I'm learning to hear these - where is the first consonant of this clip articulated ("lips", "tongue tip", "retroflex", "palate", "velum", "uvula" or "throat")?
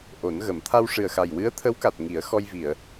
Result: throat